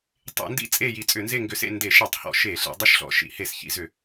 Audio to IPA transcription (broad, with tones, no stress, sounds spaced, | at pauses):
tˤ ḛ˧˩˧ n d ḭ˦˨ t͡sʼ e˦˨ j i˧˩˧ t͡sʼ ʏ˧˩˧ n z e˦˨ ŋ ɡ ʏ˧˩˧ s ḛ˦˨ n d e˧˩˧ ʃ e˧˩˧ tˤ h ɔ̰˧˩˧ ʃ e˧˩˧ ɬ ḛ˧˩˧ dˤ ʏ˦˨ ʃ ɬ ɔ̰˧˩˧ ʃ ḭ˧˩˧ h e˧˩˧ s ç ḭ˧˩˧ z ʏ˧˩˧